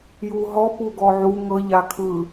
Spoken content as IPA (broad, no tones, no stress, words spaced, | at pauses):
juɦɔ puɡɔʕu ŋɤ ʎakʰɯ